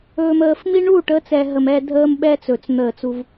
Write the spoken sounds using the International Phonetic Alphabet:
ɵː˨ m əː˨ f m i˦ ɳ u˦˨ ʈ ə˨˦ t͡s ɛ˨ ɦ ə˨ m ɛ˦ dʱ əː˦ m ɓ ɛ˦ t͡s ɵ˨ t͡s n̪ əː˦˨ t͡s u˦ v

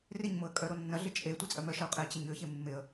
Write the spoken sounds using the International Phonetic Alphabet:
r ɪ ɲ m ʊ ə̯ kʼ œ ɾ o nː ɐ ɮ ɪ t͡ʃʼ e tʷ i t͡sʼ œ m œ ʃ ɐ ʊ̯ qʼ e ə̯ t͡ɕ ɪ ɲ ø ç e mː ɪ ə̯

